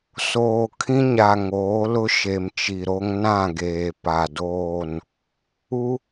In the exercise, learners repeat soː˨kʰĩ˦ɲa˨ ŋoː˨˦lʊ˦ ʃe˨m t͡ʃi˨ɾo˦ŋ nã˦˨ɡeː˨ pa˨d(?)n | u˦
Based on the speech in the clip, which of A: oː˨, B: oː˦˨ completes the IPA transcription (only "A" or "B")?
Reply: B